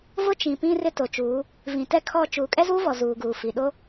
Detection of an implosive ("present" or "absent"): present